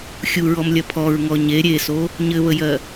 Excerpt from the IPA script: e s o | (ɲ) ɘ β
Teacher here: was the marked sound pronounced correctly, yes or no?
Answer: yes